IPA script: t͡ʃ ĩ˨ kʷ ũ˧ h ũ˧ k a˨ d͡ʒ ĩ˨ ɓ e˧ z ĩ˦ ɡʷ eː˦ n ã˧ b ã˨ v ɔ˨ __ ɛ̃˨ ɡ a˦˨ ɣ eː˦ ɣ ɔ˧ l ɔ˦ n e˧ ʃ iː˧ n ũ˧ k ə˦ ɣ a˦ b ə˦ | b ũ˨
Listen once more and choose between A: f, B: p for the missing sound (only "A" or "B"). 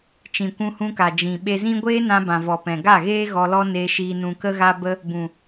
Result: B